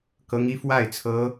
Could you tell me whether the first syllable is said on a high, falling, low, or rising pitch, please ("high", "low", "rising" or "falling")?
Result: high